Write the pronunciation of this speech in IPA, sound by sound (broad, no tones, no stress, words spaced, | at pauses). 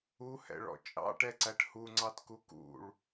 uhɛ̰ɭɔ̰ t͡ʃʼɑ̰ʈɛǀæʈ huŋ͡ǀɑtku kṵɭ